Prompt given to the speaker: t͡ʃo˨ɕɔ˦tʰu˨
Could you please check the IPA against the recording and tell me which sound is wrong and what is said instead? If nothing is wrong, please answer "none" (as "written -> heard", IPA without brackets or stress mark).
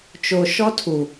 ɕ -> ʃ